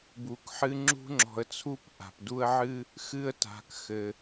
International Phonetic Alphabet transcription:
bu˩k ħɨ˦ŋ͡ǁṳ˥ ŋ͡ǁɔ̤˨ə̯t͡sʰu˥pʔa̤˩pdu˦ə̯ ʕɨ˥ | xɨ˦ə̯ta̤˩kxɘ˩

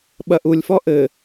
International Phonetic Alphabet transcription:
ɓɐʔulʲfɔ ʔɘ

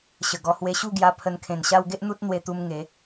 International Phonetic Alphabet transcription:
ɕə˨˩ɡɔ˧ hwe˧ɕu˥˧ɡja˧ pʰə˧nkʰẽ˨˩nɕa˦w ɡe˦ʔn̪u˦t̚ n̪we˧t̪u˧m ŋe˨˦

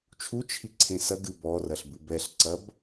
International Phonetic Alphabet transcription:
t͡ʃʰut͡ʃʰiǀʰẽ sɐɡɨ bɔrɐɬbɨ bɛɬǀɐb

